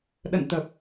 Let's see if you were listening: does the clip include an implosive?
yes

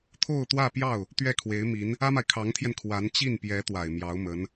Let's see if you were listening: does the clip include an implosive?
no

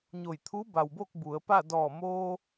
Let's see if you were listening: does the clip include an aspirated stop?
yes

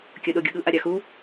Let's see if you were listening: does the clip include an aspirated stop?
no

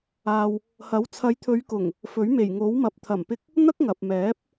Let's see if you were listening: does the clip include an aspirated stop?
yes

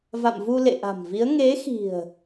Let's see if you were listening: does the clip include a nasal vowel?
no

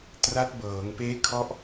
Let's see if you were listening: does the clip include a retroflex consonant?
no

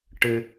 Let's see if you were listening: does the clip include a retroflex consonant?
yes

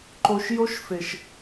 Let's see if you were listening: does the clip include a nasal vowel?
no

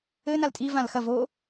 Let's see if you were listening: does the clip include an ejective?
yes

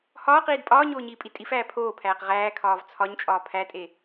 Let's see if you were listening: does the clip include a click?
no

